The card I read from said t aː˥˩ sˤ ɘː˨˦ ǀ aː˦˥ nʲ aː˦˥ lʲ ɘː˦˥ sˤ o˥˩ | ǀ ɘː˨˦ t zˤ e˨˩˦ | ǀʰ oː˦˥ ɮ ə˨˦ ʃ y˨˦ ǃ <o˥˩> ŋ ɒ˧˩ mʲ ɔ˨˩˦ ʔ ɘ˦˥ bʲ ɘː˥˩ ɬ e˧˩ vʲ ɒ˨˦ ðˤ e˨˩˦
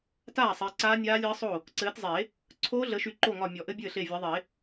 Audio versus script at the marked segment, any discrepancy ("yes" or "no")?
no